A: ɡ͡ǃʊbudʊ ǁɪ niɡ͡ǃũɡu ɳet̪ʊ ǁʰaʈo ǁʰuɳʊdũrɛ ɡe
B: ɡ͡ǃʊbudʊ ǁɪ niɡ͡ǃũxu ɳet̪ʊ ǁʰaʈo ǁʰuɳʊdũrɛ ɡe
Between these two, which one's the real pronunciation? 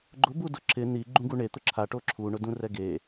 A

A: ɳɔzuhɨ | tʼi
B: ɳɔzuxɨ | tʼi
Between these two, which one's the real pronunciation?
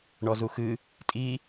B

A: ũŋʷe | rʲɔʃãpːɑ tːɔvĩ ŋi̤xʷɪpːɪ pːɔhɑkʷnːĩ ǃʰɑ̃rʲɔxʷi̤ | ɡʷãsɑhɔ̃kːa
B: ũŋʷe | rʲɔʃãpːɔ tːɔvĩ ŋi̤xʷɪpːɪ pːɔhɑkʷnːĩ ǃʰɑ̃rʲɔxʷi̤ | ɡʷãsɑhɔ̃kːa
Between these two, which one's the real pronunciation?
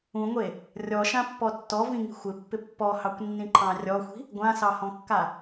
B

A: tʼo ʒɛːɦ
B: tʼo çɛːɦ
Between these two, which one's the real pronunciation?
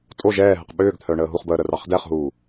A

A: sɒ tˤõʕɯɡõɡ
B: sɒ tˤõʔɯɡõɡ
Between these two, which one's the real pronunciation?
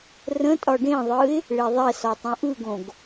B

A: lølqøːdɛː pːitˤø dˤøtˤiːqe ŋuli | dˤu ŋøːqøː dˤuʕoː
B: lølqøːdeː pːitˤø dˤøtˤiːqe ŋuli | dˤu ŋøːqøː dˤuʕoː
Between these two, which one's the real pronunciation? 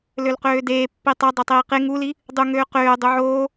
B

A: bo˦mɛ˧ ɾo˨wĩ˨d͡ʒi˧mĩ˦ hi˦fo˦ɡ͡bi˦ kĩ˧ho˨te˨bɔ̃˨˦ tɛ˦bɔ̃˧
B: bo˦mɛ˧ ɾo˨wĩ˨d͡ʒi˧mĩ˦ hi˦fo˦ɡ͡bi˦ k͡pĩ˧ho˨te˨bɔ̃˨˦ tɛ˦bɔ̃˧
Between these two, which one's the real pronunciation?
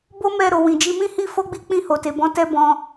B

